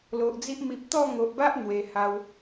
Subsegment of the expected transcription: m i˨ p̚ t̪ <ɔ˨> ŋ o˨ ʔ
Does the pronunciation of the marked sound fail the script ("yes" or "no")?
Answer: yes